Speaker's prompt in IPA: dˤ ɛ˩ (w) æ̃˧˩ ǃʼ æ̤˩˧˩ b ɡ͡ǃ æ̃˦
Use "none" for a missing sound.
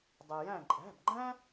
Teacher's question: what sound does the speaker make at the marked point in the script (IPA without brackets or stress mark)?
j